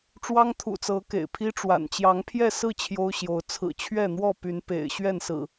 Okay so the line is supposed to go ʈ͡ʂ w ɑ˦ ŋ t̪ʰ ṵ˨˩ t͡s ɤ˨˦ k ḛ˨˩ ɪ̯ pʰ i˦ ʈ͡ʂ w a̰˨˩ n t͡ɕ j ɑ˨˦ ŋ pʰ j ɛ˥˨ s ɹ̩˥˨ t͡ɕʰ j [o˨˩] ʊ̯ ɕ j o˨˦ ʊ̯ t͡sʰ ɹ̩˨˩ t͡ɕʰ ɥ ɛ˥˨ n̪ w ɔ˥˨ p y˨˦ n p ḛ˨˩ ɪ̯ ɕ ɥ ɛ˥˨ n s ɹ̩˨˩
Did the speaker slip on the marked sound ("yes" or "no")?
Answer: yes